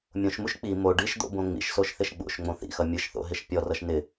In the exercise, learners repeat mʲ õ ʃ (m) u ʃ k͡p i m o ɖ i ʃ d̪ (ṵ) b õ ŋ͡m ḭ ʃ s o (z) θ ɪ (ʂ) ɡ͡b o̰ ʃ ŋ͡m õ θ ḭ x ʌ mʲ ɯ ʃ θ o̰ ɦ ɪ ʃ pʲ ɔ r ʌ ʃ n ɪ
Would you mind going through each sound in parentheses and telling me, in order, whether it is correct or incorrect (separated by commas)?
correct, incorrect, incorrect, incorrect